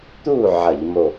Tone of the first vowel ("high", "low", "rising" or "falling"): falling